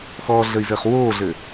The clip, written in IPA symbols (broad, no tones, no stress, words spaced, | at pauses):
xɔːɮəi̯zɘːχ woːɮɘ